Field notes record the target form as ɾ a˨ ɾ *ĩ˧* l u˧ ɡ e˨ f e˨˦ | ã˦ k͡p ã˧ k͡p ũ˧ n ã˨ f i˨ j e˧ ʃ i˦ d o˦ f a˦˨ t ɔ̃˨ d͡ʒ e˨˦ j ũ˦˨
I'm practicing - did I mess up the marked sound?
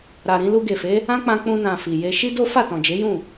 no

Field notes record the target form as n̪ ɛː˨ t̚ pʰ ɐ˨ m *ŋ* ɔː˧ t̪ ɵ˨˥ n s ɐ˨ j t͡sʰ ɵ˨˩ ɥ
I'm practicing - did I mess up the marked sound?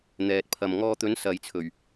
no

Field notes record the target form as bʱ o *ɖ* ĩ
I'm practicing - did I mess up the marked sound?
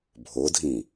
yes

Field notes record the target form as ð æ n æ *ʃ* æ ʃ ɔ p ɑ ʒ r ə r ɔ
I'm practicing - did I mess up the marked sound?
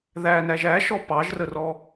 yes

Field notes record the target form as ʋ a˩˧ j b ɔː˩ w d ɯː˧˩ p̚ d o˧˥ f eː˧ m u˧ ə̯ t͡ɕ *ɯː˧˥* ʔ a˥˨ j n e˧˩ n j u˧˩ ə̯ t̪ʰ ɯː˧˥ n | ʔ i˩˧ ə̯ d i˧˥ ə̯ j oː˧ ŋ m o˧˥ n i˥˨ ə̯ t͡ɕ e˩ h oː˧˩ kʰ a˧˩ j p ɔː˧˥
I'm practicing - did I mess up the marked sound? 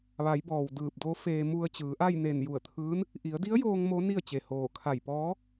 yes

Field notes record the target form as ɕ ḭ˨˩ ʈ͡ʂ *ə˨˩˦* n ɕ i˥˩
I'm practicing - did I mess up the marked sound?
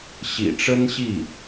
yes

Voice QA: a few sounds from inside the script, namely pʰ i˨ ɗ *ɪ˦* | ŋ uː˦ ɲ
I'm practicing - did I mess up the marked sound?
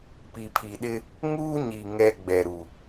no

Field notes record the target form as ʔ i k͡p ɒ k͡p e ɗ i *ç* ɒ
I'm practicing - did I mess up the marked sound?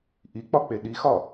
yes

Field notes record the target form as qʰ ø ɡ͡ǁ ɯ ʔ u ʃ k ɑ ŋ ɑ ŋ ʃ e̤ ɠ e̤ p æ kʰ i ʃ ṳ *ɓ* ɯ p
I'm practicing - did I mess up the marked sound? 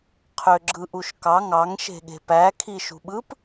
no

